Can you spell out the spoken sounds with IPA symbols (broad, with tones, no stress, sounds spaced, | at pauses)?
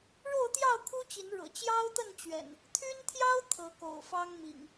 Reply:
ɻ o˥˨ ʊ̯ t̪ j ɑ˥˨ ʊ̯ kʰ u˦ t͡ɕ i˨˦ n ɻ ɤ̰˨˩ t͡ɕ j ɑ˦ ʊ̯ t̪ ə˥˨ n t͡ɕ ɥ ɛ̰˨˩ n | t̪ʰ y˦ n t̪ʰ j ɑ˦ ʊ̯ t̪ʰ ɤ˨˦ k o̰˨˩ ʊ̯ f ɑ˦ ŋ m ḭ˨˩ ŋ